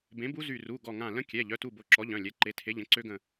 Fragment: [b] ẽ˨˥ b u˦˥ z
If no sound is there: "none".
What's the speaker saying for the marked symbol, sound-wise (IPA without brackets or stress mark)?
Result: b